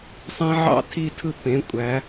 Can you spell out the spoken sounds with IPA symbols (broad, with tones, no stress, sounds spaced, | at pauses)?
sˤ ẽ˦˥ ʕ ɑ̰˦˥ tʰ i˦˥ tʰ ɯ˦˥ p ẽ˩˧˩ kʷʼ æ˩˧